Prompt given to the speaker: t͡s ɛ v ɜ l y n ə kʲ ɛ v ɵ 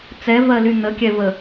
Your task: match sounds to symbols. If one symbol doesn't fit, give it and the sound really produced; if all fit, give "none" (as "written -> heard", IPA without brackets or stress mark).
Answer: ɵ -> ə